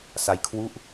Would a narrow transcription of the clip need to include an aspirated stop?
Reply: yes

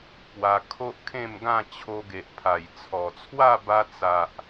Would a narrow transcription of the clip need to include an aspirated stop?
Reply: yes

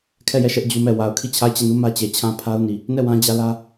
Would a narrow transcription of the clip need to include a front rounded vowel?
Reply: no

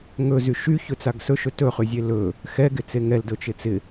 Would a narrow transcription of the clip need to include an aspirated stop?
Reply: no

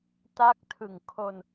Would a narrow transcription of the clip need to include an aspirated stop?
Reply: yes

